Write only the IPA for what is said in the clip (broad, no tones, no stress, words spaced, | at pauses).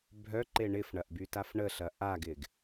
bʱœǃe ɳɪfɳɐʔbytaf ɳəɬɐ ʔaɡɪɡ